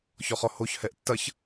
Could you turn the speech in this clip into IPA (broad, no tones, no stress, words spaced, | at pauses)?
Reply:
çɔχɔhoç hɛʔtːɐç